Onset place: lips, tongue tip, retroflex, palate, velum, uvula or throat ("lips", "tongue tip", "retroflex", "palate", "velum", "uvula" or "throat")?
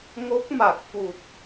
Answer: velum